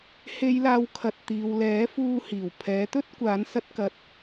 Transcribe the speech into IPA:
h e˨˧ j l aː˨ w kʰ ɐ˨ t̚ t̪ iː˨ w l ɛː˨˥ f uː˧ h iː˨˩ w pʰ ɛː˨˥ t̪ ɵ˥ t̚ kʷ aː˨˥ n s ɐ˥ t̚ k ɐ˧ t̚

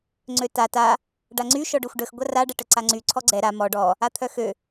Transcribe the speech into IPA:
ŋ͡ǀ ø t a t a | ɖ a ŋ͡ǀ y ʃ ɔ ɖ ø xʷ ɖ ə x ɡʷ a r a ɖ ɛ ʈ ə ǀ a ŋ͡ǀ y ǀʰ ɔ ɡ͡ǀ ɛ ɾ a m ɔ ɖ ɔ | a t̪ʰ œ x ø

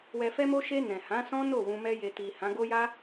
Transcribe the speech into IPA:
w ɛ˨ f ɛ˧ m o˧ ʃ e˧ n ɛ̃˨ h ã˨˦ s ɔ̃˦ n o˦˨ w ũ˧ m ɛ˦ j e˧ t i˨ h ã˨˦ ɡ o˦ j a˦

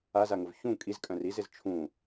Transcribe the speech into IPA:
a z a ŋ ʊ v ç ũ kʼ i z kʼ œ̃ r i z ɪ z t͡ʃʰ ũ

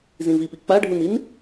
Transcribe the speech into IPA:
z ĩ v i p i k͡p a ɖʱ u n i n

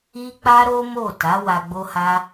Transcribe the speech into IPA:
i˦ k͡p a˦ ɾ o˦ m o˦˨ t a˨˦ w a˧ ɡ͡b o˦ h a˦

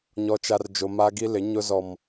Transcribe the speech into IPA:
ɲ ɔ˦ t͡ʃ a˦ r d͡ʒ o˦ m a˦ ɡ i˦ l ɪ˨˦ ɲ ʊ˦ z ɔ˦ m

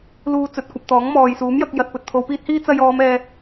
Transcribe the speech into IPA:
l uː˧ t͡s ɵ˨ t̚ kʷ ɐ˧ p̚ t̪ ɔː˨˥ ŋ m ɔː˨ j s uː˨˥ m j ɐ˧ k̚ j ɐ˨ t̚ p ɵ˨ t̚ t̪ʰ o˨˧ w p iː˥ t̚ h iː˥ t͡s ɐ˧ j ɔː˨˧ m ɛː˨

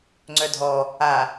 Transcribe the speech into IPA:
ŋ͡ǀ œ dʱ ɔ | a

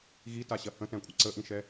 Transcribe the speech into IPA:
ɣ i t a ɕ ɐ h ə̃ t ɛ̃ kʷʼ ɐ ǀ ə ʔ ĩ ʃ ɛ

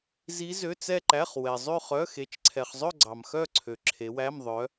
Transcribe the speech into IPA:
z i˦˥ z ø˧˥˧ t͡s ɛ˥˧ ǃ æ˧˥˧ χ w ɛ˨ zˤ ʉ˥˧ χ œ˧˥˧ x e˨˦ t͡ʃ ǀʰ ɛ˨ χ zˤ ɵ˥˧ ɡ͡ǀ ɑ˨ m x œ˥˧ ǀʰ ø˨ ǁʰ e˨˦ w æ˧˥˧ m ðˤ œ˨˦

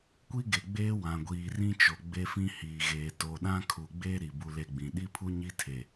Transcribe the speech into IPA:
kʷ i˦ ɡ e˨ ɡ͡b eː˦ w ã˨ ɡʷ iː˨ r ĩ˦ t͡ʃ o˨ ɡ͡b e˦ f ĩ˦ h iː˨ ɣ eː˨ t o˨ ɗ ã˦ kʰ u˨ ɡ͡b eː˦ ɾ i˨ b u˦ l e˦ ɡ͡b ĩ˨ ɗ i˦ pʰ u˦ ɲ i˦ tʰ e˨

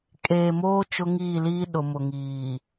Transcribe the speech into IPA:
kʼ eː˨ m oː˦ t͡ʃ ʊ˦ ŋ iː˦˨ l iː˦ ɗ ʊ˨ m ʊ˨ ŋ iː˨

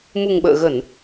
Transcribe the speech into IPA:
m u˨˩ ŋ ɓ ə̰ː˧˨ ɣ ə˧˩˨ n

